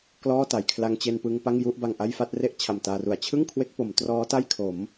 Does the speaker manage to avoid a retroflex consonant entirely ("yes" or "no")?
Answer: yes